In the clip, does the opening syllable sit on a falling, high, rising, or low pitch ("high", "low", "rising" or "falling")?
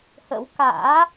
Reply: rising